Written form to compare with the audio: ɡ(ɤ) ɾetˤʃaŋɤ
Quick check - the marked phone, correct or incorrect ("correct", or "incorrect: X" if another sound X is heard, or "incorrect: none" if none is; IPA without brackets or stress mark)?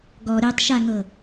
incorrect: ɔ